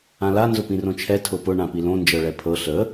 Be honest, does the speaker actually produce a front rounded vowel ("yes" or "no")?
no